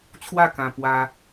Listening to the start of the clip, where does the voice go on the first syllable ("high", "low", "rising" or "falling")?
falling